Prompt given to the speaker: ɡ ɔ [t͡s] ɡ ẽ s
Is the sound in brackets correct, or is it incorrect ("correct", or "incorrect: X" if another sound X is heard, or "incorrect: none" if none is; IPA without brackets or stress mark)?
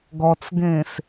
correct